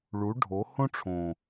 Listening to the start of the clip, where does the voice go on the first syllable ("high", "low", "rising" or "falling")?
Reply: rising